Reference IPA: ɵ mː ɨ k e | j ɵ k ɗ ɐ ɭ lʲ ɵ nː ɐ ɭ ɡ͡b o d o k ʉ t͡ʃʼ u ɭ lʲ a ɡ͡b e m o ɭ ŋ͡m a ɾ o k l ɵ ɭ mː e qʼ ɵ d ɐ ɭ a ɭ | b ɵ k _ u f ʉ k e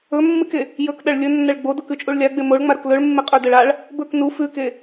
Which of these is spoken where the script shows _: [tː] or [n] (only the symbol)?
n